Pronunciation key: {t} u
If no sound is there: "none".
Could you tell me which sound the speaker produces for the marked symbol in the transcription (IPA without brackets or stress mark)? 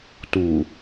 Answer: t